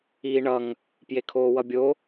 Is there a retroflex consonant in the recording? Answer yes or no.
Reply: yes